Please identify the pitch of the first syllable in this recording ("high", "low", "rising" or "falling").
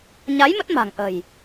rising